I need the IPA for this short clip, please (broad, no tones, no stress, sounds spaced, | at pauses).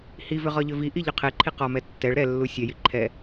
h i v ʏ ʁ ɒ ʎ ʏ v i ʔ i ʎ ʏ qʰ e ǃʰ i q ɒ m ɛ tː ɛ ɭ ɾ ɛ lː u sʲ ɛ j i ǃʰ ɛ